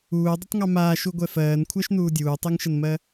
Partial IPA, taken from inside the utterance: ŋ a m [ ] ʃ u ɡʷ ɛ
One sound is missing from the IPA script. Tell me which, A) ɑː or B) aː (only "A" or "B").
B